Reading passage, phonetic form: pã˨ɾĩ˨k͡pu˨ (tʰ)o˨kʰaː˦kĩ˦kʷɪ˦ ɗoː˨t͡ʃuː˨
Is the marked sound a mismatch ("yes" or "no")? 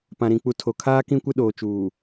no